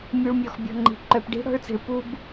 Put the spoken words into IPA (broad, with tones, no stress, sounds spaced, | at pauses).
mʲ u˨ ɭ mʲ ɔ˨ x bʲ ɔ̤˨ ŋ͡ǃ i̤˨ ǃ œ˨ p ɖ i̤˦ ɽ ɔ̤˦ ɭ t͡s i̤˨ ɭ p u˦ b